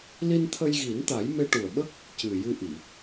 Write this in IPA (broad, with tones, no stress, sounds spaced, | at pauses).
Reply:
l i˧ n t̪ʰ ə˧ j ɣ i˨˩˦ n t̪ a˨˩˦ j m e˧ ʈ u˨˩ ə̯ ɓ ə˦˥ k̚ | c ɨ˨˩ j ɨ˧ ʔ i˨˩˨